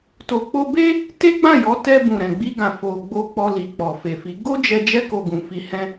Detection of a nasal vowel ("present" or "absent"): present